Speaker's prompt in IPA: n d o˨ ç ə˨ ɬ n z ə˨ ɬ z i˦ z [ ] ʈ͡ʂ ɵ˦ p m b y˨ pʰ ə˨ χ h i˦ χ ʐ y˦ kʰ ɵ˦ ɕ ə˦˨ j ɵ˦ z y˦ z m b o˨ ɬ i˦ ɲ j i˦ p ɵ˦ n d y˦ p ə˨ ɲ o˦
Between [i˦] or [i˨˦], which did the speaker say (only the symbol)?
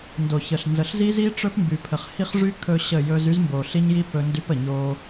i˦